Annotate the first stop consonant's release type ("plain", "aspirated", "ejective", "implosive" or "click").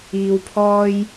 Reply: aspirated